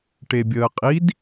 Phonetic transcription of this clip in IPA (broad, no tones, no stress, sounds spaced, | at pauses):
ʈ e bʲ əː qʼ i d